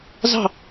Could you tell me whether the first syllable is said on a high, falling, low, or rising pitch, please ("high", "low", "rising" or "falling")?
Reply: falling